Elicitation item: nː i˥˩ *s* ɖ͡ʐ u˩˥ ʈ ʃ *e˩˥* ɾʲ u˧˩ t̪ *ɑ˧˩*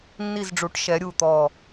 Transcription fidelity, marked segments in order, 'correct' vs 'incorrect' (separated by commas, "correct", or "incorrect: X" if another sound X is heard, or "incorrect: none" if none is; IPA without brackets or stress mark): incorrect: z, incorrect: ɛ˩˥, incorrect: ɔ˧˩